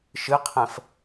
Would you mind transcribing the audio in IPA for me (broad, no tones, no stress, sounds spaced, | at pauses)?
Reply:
ʃ ɨ qʰ ɛ̃ f